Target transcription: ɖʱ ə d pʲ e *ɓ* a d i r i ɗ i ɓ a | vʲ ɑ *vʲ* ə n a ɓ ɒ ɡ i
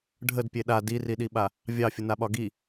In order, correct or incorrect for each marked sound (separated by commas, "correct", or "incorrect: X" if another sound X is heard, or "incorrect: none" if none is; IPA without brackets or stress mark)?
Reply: incorrect: ɗ, incorrect: fʲ